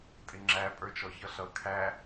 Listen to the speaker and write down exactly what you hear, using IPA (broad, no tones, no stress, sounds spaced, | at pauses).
tʼ ɪ ŋ͡ǁ æ pʼ ə˞ t͡ʃ ɔ ç ʌ ɬ ʌ kʰ æ